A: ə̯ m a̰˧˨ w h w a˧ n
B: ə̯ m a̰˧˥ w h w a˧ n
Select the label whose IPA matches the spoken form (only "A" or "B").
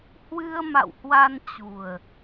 A